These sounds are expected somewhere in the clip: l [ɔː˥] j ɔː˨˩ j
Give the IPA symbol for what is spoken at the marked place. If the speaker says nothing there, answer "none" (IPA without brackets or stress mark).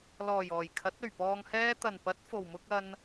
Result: ɔː˨˩